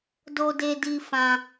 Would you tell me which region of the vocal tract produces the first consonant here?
tongue tip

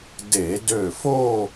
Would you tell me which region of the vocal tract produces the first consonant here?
tongue tip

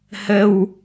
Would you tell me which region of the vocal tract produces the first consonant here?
throat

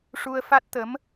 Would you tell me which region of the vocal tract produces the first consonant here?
retroflex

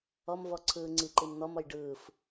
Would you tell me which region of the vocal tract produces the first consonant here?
lips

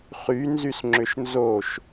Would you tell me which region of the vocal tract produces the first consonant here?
uvula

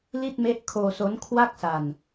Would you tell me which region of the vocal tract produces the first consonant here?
tongue tip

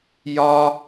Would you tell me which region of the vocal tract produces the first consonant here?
palate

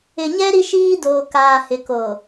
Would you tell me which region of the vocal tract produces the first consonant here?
palate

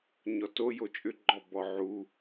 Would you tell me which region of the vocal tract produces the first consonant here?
palate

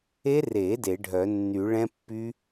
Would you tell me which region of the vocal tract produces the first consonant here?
tongue tip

